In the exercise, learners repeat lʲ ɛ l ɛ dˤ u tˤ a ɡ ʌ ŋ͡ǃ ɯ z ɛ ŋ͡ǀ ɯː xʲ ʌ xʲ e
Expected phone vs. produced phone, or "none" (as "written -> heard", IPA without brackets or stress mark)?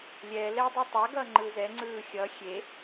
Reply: none